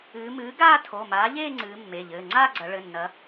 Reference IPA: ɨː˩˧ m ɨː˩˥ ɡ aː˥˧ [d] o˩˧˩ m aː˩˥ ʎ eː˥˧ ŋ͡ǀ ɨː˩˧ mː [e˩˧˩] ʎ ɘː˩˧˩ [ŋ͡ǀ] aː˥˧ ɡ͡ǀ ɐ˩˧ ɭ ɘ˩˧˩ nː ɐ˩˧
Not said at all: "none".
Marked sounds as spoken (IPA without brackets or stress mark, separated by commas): tʰ, e˩˧˩, ŋ͡ǀ